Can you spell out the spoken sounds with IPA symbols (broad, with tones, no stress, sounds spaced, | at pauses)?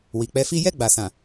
w i˨ k͡p ɛ˧ f i˦ j ɛ˦˨ ɡ͡b a˨ s ã˨